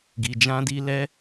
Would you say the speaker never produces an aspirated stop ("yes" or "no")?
yes